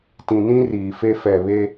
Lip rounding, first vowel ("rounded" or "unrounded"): unrounded